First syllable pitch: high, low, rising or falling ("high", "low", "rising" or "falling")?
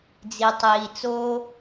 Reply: low